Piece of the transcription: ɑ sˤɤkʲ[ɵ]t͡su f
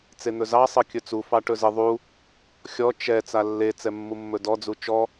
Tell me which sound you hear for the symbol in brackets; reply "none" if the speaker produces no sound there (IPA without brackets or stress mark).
ɵ